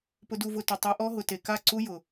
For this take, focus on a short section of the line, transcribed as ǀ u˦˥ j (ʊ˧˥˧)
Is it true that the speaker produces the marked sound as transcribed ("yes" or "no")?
no